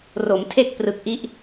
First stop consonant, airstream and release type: aspirated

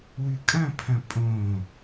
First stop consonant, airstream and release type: ejective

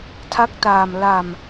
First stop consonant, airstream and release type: aspirated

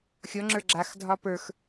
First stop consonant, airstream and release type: click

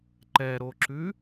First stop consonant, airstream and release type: click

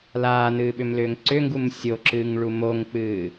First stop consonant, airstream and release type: implosive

